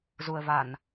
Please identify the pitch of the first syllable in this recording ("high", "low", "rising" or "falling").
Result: low